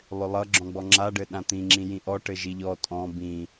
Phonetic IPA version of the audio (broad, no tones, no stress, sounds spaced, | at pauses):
lˠ ʏ lˠ ʌ ɡ͡ǁ ɔ̃ ɡ͡b ɔ ŋ͡ǁ a ɖ ɘ ɗ ã t̪ ĩ ŋ͡ǁ ĩ j ĩ ʔ ɔ ʈ ɘ ʒ i ʎ ɔ tʼ ɔ̃ b ĩ